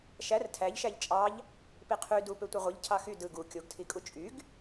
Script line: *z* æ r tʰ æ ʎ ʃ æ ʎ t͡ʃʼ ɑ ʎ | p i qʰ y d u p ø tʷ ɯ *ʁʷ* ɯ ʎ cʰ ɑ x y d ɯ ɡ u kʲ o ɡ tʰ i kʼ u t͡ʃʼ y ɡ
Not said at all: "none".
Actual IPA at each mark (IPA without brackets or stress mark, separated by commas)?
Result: ʃ, ʁʷ